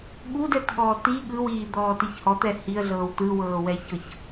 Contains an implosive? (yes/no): yes